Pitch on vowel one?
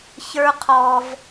high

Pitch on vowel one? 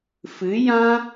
rising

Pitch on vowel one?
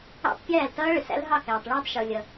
falling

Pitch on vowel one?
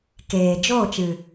low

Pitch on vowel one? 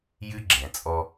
high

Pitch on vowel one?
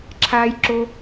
high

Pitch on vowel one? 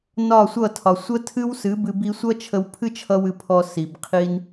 falling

